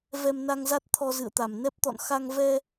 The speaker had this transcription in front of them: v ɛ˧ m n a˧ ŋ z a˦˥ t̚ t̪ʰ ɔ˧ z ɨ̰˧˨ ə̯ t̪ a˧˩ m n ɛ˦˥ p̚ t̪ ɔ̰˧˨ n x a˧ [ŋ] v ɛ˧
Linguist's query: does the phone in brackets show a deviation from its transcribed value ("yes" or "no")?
no